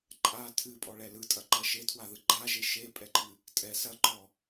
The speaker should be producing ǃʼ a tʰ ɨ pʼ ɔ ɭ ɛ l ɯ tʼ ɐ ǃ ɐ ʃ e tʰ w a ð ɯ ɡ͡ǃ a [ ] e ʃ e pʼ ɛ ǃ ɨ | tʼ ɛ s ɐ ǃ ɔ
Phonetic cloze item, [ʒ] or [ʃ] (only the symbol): ʒ